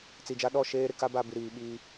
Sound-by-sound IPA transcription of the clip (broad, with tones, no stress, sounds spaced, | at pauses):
t͡s i˨ d͡ʒ a˦ ɗ ɔ˦˨ ʃ eː˦ ɾ ɪ˨ k a˦ b a˨ b i˨ ɾ iː˨ ɓ iː˦